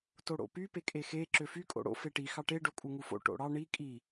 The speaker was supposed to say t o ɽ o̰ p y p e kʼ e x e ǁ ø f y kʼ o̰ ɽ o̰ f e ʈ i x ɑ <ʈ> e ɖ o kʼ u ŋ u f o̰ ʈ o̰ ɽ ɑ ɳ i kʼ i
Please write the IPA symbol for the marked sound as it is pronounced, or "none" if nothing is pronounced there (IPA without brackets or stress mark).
ʈ